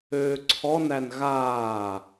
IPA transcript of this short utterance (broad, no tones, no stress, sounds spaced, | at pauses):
øː ǀʰ ɔ n æ n ɣ aː